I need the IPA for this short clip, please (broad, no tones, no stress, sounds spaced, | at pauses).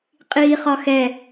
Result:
qʼ iː χ ɒ x ɛ